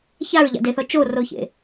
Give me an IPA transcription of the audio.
ç a ɹ ʎ a̰ d e θ ɔ t͡ʃ o r o ç ḛ

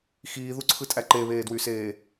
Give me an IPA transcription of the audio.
x iː ð u ǀʰ ɯ tʼ æ ǃ e β eː d w y s eː

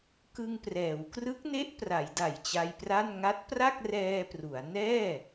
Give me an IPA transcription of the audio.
k ɯ˧ ŋ p r ɛː˩˦ w k r ɯ˦˥ k̚ n e˦˥ ʔ p r a˩˦ j d a˨˩ j t͡ɕ a˧ j p r a˥˩ n ŋ a˦˥ t̚ p r a˥˩ k̚ r ɛː˧ p r u˩˦ a̯ n ɛː˥˩

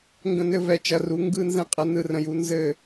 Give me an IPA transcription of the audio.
ŋ ɡ ə̃˧ n ɘ˧ v ɛ˨˦ t͡ʃ ɐ˧ r u˨˦ ŋ ɡ ɯ˦ n z ɛ̃˦ qʼ ɐ˦ n ɯ˧ r ə̃˧ j u˦ n z ɘ˦˨

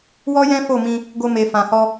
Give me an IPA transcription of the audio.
w ɔ˦ j ɛ̃˦ f o˦˨ m ĩ˧ | ɡ o˧ m e˨ f ã˨ h ɔ˧

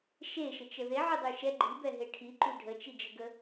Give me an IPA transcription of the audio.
ʃ e ʃ ə t͡ʃ ə ð e ʕ y dˤ y ʃ ɛ ɡ͡ǃ i b ɛ ɦ e ʈʰ i ǃ y ɖʱ ə t͡ʃ i d͡ʒ ə ɡ ə

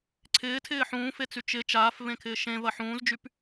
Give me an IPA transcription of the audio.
ǀʰ ɪː tʰ ɪː ħ ũː f e t͡s y t͡ʃ ɪ t͡ʃ aː f v ẽ kʰ ɪː ʃ ẽ v ɐ ħ ũː z d͡ʒ y p

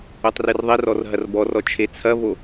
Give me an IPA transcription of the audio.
u tˤ r ɨ r ðˤ e r ɔ r ɦ ɐ r b ɔ r ɔ t͡ʃʰ e t͡sʰ ɐ v o

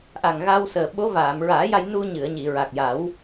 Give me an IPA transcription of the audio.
ʔ a˨˩ ŋ ɣ a˧ w s əː˨˩ ɓ o˧˥ v aː˨˩˨ m ɹ aː˨˩˦ j a˧ j n u˧ ɲ ɨ˨˩˨ ə̯ ɲ i˨˩˨ ɹ a˨˩ k̚ j a˨˩˦ w

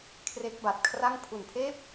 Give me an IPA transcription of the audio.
kʰ r e˦˥ k̚ b a˨˩ t̚ kʰ r a˥˩ ŋ pʰ u˨˩ n pʰ eː˥˩ p̚

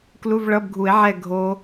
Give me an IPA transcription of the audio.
k l u˧˥˧ v ɭ ʌ˧˥˧ b ɡʱ u˨˩˦ e̯ ʕ ɛ˦˨ ɡʱ o˦˥

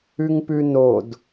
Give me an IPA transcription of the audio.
ʉ ŋ p ʉ n o d

